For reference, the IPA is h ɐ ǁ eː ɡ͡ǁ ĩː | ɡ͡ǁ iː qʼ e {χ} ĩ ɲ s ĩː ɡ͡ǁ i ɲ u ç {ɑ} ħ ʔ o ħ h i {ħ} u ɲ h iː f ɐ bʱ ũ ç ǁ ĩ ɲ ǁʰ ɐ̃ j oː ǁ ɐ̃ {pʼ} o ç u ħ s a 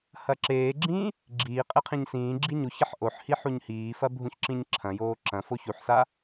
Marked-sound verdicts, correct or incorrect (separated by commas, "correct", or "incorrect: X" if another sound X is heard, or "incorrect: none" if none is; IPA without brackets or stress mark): incorrect: qʰ, incorrect: ɐ, correct, incorrect: f